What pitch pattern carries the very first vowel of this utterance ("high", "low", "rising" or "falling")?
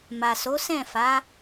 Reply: low